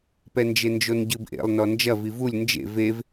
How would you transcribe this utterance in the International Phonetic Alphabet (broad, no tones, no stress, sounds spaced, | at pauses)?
p ɛ n d͡ʒ e n d͡ʒ o n ɟ ɨ b ʔ ḛ lˠ n ɔ n d͡ʒ ɐ v i v u lʲ n d͡ʒ ḛ v e v